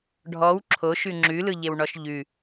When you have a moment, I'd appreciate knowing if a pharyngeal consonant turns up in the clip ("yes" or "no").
no